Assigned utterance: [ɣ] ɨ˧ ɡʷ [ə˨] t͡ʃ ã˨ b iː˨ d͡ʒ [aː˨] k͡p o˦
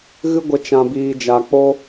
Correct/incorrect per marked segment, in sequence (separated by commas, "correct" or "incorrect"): correct, correct, incorrect